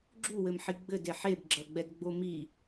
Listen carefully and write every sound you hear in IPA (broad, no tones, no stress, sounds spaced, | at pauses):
ɡ͡ǁ u w ɘ m ħ i ɡ͡b ɘ d e ħ e b ɡ͡ǁ ɐ ɡ͡b ɛ d ɡ͡b o m i